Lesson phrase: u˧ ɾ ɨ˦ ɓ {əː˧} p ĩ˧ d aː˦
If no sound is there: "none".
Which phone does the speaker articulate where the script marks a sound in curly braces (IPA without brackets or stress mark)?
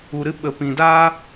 ə˧